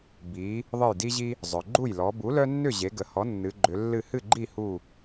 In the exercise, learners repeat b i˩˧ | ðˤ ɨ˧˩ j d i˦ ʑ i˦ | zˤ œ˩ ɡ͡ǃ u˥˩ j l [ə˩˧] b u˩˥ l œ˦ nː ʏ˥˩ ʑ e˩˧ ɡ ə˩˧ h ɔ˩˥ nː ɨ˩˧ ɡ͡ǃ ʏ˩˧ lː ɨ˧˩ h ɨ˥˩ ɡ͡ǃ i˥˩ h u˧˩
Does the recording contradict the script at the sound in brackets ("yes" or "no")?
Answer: yes